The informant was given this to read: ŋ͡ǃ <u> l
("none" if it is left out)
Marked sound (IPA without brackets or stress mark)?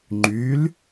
y